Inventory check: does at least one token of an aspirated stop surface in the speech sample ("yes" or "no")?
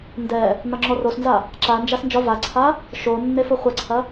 yes